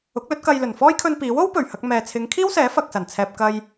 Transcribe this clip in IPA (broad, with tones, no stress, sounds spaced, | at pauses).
ʊ˨˥ k̚ l ɵ˨˥ t̚ k ɐ˧ j l ɵ˨˩ n f ɔː˥ j kʰ ɵ˧ n p iː˨˥ w o˥ w p ɵ˨˩ ɥ h ɐ˧ k̚ m ɛː˨ t͡sʰ ɪ˨˧ ŋ kʰ iː˥ w s ɛː˨˥ f ɐ˧ k̚ s ɐ˨˩ n t͡sʰ ɛː˧ p̚ k ɐ˧ j